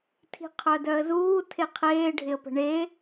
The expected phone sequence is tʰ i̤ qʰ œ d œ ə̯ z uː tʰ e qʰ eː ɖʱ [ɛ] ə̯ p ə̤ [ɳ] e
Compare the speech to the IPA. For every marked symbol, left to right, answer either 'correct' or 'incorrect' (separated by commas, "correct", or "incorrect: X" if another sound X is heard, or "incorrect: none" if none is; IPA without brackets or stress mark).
incorrect: ɪ, correct